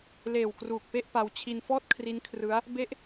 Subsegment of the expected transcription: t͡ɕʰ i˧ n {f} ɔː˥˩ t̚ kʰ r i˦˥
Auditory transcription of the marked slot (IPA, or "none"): f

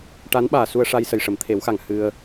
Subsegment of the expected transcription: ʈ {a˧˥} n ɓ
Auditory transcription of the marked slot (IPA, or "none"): a˧˥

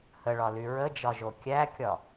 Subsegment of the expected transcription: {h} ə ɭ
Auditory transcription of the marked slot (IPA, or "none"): h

